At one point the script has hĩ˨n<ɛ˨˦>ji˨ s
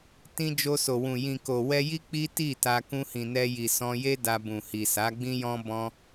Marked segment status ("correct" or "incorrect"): incorrect